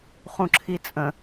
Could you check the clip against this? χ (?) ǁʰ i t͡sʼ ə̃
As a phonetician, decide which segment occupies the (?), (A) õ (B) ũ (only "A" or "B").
B